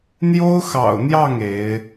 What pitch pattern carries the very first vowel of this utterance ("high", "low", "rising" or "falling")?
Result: high